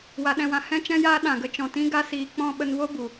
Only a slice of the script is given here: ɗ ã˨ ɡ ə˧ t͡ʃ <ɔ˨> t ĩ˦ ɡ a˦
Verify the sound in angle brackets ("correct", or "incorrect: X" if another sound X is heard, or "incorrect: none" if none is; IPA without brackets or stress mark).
incorrect: ɔ̃˨